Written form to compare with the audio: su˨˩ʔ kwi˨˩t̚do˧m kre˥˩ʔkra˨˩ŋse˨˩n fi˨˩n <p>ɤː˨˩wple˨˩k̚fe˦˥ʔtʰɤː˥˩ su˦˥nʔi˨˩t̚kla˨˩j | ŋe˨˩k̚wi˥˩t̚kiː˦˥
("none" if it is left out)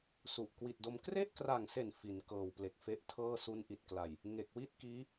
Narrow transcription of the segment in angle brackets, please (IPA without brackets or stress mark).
k